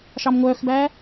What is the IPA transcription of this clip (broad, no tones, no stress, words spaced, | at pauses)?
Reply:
ʃɑmŋʷœːxbæː